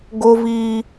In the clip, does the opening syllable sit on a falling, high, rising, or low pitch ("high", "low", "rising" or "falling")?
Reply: high